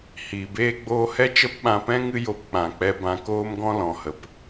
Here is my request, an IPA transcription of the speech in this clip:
hiː˨beː˦ɡ͡boː˦ hɛ˦t͡ʃə˦pɓã˧pɛ̃˦ ŋɨ˦jo˧pk͡pã˨k͡pɛ˧ bã˧koː˦mɡɔ̃˦ lɔ̃˨hə˨p

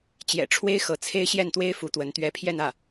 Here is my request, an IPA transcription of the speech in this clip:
t͡ɕjɛ̰˨˩ʈ͡ʂʰwe˥ɪ̯ xɤ˧˥t͡sʰe˥ɪ̯ ɕjɛ˥˩nt̪we˥ɪ̯ fu˧˥t̪wə˧˥n t̪ɥɛ˧˥pʰjɛ˥˧nä˥˩

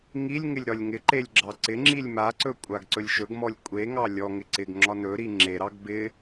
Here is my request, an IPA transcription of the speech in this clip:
ŋilʲŋɪlʲ ɾɒlʲŋɪǃelʲ ɡ͡ǁɑǀɪŋ͡ǁilʲ maǀɵ kʷʼaɡǀɵlʲʃɵɡmɔlʲ kʷʼeŋɑ lʲɔŋɪ ǀɪɡ ŋ͡ǁɒnɵɾi ŋ͡ǁeɾɑɡ bɪ

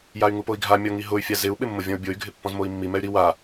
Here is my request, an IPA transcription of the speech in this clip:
jay̯ŋupoi̯ɡʱa mʲɔŋiɦʊy̯ fʲazɪu̯ ɓɪmːʊvʲɔ̃u̯bʲoy̯ ɡʱɪpːɔ̃zmoi̯mːi mɛy̯ɾi wa

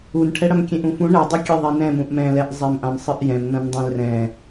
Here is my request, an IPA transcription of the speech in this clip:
unʈʰɛ ɽɐmkʲẽʔũfũ ɳɛdˤukʲe ðˤenɛ̃ mũʔmɛ̃lɛʔ zˤɛmʔãmsˤɨʔjɛ̃m nɐ̃ndˤẽlrɛ̃

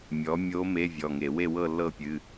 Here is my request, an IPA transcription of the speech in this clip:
mʲɔ˩˥mʲo˧˥ me˧˥˧vʲɔ˩˧˩ŋe˧˩˧ we˥˨wɤ˥˨lːɤ˥˨ pʲɨ˧˥˧

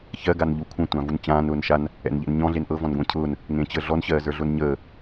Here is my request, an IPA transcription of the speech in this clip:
çɜ ɡanʎukʷʰə̃ tʷãvunt͡ɕãːn ʊːnʃan | ɛ̰nʎɛ̰nɲɔ̃ ɮenʔɤ vɔ̃nɡʷẽcʰʊːn | ŋẽt͡ɕəːɮɔn ɕɜːzə˞ɮʊnɲəː

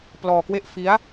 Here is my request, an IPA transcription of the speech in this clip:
plɔː˧kwe˥˩ʔ fi˦˥a̯

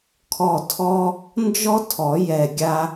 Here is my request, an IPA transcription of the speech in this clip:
kʰɔ˦˨tʰɔ˥ | nd͡ʒɔ˥tʰɔ˨˩˦ jɛ˦˨ɡʲa˥

